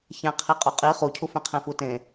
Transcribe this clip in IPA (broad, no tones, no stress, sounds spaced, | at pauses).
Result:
ç æ̃ qʰ i qʼ u qʼ i χ u cʰ u f ẽ qʰ ẽ f u t ẽ